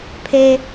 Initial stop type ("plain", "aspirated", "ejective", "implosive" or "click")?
aspirated